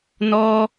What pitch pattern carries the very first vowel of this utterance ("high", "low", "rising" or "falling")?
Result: high